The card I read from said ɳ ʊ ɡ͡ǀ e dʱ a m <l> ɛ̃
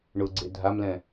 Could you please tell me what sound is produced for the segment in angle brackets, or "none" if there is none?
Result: l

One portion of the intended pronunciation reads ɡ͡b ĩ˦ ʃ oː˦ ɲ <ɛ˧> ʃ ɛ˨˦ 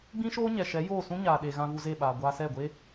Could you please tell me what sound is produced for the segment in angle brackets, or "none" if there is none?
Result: ɛ˨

